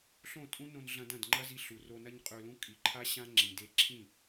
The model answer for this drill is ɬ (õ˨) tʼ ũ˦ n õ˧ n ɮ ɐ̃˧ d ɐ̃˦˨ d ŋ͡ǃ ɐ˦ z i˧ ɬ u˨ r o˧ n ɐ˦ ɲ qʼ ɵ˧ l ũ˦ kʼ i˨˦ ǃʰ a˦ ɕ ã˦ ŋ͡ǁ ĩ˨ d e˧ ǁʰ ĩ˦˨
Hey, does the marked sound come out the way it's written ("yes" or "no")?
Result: no